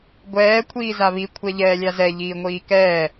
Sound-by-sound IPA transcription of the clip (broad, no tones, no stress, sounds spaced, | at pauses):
ɡʷ ɛː kʷʰ iː z a β i kʷʰ ɛ ʎ ɛː lʲ a z ɛ ʎ iː ŋʷ iː k ɛː